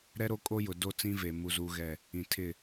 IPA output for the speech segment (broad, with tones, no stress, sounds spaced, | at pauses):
ɾ ɛ˦ ɾ o˦ kʼ o˦ j ʊ˨ d o˦˨ t͡s ĩ˦ v e˨ m u˦ z u˦ ɣ ɛ˦˨ | ĩ˨ tʰ ɪ˦˨